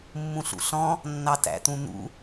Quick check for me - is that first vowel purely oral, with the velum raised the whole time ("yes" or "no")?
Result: no